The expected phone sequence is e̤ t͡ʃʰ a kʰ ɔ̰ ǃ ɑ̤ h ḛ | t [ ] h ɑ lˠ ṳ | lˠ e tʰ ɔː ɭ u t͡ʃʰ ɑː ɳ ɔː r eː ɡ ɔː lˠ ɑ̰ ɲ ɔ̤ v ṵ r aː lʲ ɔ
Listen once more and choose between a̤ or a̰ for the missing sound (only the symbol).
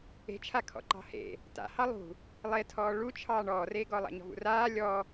a̰